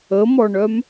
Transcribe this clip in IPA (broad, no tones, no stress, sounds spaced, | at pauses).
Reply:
ə m ɔ ɳ œ m